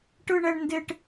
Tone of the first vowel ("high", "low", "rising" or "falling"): high